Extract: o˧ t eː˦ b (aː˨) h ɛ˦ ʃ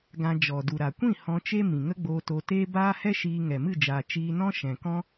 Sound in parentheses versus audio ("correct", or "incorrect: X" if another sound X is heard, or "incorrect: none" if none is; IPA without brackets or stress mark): incorrect: aː˦